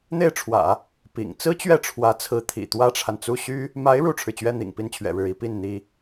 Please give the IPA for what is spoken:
n̪ e˥˩ ɪ̯ ʈ͡ʂʰ w ä̰˨˩˦ | p ḭ˨˩ ŋ t͡s ɹ̩˥ t͡ɕ ɥ ɛ˥˩ ʈ͡ʂʰ w ä˧˥ t͡sʰ ɹ̩˧˥ t̪ʰ ḭ˨˩ t̪ w ä˥ ʈ͡ʂʰ a˨ n t͡s u˥˩ ɕ y˥ | m a˧˥ ɪ̯ ɻ u˥ ʈ͡ʂʰ ɻ̩˨ t͡ɕ ɥ ɛ˥ n̪ ḭ˨˩ ŋ p i˥ n t͡ɕʰ ɥ ɛ̰˨˩ ɻ ɻ̩˥˩ i˥ p i˥˩ n n̪ i˥

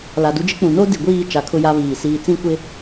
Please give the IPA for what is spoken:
l a˨ d u˦ d͡ʒ ɪ˦ k͡p ũ˨ n o˦ d i˨ ɡʷ iː˦˨ t͡ʃ a˨ kʰ ʊ˦ j a˦ β iː˨ s iː˨ t͡s ĩ˦˨ kʷ ɪ˦

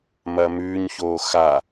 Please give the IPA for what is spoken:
m ɐː m ʉː ɲ ç oː x a

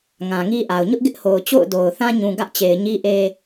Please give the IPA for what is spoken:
ŋ ã˨ ŋ i˦ ʔ a˨ ʊ̯ ɲ ʊ˦ ʔ ɡ ɪ˦ ʔ h o˨ ʊ̯ t͡ɕ o̰˦˨ ʊ̯ d o˨ ʊ̯ θ ã˦ ɲ ũ˨ ɡ ä˦ ʔ t͡ɕ e˨ ɪ̯ ɲ i˦ ʔ e˦

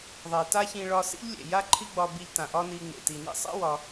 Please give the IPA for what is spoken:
ðˤ e˩ t a˥ ç ĩ˧ ɭ ɒ˧ s ḭ˥ ʎ lʲ ḛ˩ j a˥ ǃʰ i˥ ɡ͡b ɒ˧ b i˧ ʎ t ã˩ ʔ ɒ˥ n i˧ ŋ͡m ḛ˩ t i˩ n ḭ˥ sˤ ḛ˥ w ɒ˧

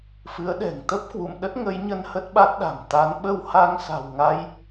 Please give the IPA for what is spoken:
f ɨ˨˦ ə̯ ɗ ɛ̤˨˩ ŋ t̪ ə˦˥ p̚ k w ṵ˧˨ m ɗ ə˦˥ t̚ ŋ ə˨˦ j ɲ ə˧ n h ə˦˥ t̚ ɓ a˦˥ t̚ ɗ a̤˨˩ m t̪ a˨˦ n ɓ ə˧ w h a˧ ŋ s a̤˨˩ w ŋ a˧ j

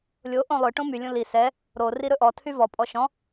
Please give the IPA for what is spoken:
lʲ o ʔ õ lˠ ɵ ʈ õ m y lʲ õ l i s ɛ | ɾ o r i ɾ ɵ ʔ ɔ tʰ y v ɔ pʼ ɔ ʃ ɔ̃

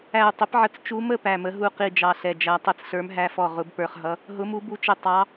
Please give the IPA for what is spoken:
æ˦˨ u̯ tˤ ɪ˧˥ p ʕ ə˦˨ t͡s t͡ʃ u˧˥ m ə˦˨ p æ˦˨ m ə˧˥ ɦ u˦˨ q i˦˨ d͡ʒ ɑ˦˨ ɬ ɛ˦˨ d͡ʒ æ˧˥ tˤ i˧˥ t͡s ɬ ə˞˧˥ m ɦ æ˧˥ f ɔ˦˨ ʁ ʊ˧˥ b p ə˞˦˨ χ ɦ ʌ˧˥ | ɦ ʊ˧˥ m u˧˥ b u˧˥ t͡ʃ ɪ˦˨ tˤ ɑ˧˥

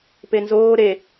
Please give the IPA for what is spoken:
p e n z oː ɾ e

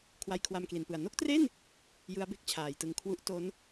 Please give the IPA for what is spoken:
kʰ w a˧ j kʰ w a˧ m k l i˩˦ n p ɯ˨˩ a̯ n o˥˩ k̚ t r e˥˩ n | j ɯ˦˥ a̯ b e˥˩ k̚ t͡ɕʰ aː˩˦ j t ɯ˧ ŋ kʰ w u˦˥ ʔ t o˦˥ n

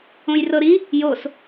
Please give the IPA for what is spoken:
õ j r ɤ ɾ i | j o s

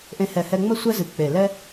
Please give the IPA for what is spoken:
ʔ ẽ˧ h ɛ˧˩ h ɛ˧ ŋ͡m ə˥ sʷ ɛ˥ z ɨ˧˩ k͡p e˧˩ l ɛ˥

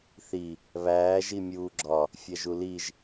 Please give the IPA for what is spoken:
θ i | β æː ʒ i mʲ uː ɡ͡ǁ ɒ | fʲ æ ʒ u l i ʒ

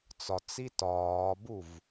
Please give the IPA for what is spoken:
t͡s ɒ t͡s i t ɒː b u v

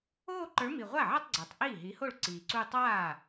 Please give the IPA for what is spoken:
oː˥˧ ǃ ə˞˨˥ m i˨˩ ʁʷ a˥˩ ʕ a˥˧ tˤ ɡ͡ǀ ə˞˨˩ tˤ ʔ iː˥˩ ɦ i˨˥ h o˥˩ ɭ ǀ iː˨˩ ǀ u˥˧ tˤ aː˥˩

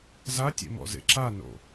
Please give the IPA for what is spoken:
z a tʲ ḛ m ɔ̰ z ḛ ǁ a n o̰

